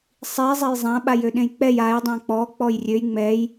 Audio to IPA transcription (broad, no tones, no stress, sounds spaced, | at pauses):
sˤ i zˤ ɛ j zˤ ã ɓ a j ø ɗ ẽ j k͡p ɛ j a j dˤ ã k͡p ɔ k͡p ɔ j rʲ ø j ŋ͡m ɛ j